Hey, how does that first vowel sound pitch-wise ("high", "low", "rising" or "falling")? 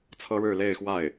high